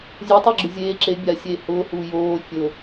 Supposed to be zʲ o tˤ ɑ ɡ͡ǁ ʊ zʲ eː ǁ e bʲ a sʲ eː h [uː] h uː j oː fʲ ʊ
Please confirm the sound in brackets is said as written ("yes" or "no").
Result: no